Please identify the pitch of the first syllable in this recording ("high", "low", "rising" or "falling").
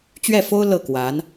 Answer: falling